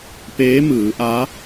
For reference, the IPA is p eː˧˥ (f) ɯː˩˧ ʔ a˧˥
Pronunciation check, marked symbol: incorrect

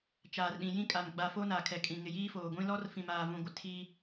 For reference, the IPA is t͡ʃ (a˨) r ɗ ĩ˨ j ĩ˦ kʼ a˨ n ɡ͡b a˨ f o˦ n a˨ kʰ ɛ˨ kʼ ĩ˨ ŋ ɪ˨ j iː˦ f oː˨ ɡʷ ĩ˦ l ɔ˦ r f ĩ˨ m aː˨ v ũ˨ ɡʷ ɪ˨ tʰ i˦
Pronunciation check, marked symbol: incorrect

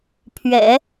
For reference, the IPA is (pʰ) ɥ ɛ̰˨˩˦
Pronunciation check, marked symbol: correct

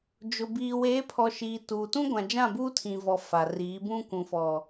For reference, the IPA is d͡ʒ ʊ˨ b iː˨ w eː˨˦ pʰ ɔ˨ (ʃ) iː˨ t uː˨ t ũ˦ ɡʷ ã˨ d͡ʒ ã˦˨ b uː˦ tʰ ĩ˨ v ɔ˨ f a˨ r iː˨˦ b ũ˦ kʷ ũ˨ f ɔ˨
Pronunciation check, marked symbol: correct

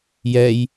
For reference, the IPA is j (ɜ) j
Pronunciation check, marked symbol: incorrect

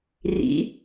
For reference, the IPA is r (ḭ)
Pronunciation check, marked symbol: correct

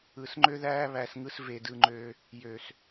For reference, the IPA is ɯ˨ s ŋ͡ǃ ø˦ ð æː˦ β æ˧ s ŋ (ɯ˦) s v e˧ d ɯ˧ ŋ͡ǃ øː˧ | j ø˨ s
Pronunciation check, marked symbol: correct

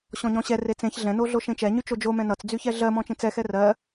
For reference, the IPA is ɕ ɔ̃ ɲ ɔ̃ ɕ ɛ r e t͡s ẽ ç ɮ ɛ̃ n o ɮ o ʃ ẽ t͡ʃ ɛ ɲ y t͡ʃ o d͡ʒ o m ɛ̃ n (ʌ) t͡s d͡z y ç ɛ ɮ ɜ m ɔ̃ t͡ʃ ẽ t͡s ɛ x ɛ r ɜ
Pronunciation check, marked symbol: correct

